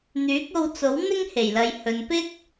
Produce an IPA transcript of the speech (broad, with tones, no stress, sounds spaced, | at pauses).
n̪ yː˨˥ k̚ o˧ w t͡s o˨˥ w n̪ ɪ˥ ŋ h e˨˩ j l ɐ˨ j h ɵ˨ n p ɪ˥ k̚